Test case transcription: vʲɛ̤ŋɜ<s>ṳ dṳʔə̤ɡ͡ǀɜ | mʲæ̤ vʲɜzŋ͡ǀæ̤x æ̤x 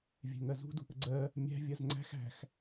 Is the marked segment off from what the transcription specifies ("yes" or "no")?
yes